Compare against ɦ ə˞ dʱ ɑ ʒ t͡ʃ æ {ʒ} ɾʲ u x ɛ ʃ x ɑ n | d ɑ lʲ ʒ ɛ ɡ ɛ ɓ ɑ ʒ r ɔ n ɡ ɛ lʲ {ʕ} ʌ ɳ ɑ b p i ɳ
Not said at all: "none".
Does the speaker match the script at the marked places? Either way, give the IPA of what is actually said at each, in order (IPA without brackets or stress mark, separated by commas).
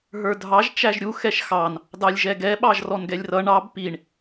ʒ, r